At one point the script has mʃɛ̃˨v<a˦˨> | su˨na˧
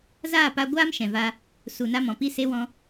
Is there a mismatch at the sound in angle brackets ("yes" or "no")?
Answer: yes